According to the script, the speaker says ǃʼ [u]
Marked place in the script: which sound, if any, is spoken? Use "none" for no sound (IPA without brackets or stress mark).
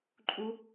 u